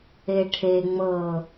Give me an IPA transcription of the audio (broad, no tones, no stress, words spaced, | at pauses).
eʈʰe ŋ͡mɤ